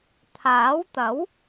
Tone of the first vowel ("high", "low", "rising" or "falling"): rising